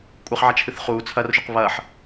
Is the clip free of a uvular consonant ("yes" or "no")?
no